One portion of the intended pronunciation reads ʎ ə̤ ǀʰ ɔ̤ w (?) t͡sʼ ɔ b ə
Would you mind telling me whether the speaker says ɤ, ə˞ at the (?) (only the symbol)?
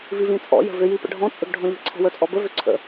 ə˞